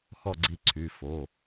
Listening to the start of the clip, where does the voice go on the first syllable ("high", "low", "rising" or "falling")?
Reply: falling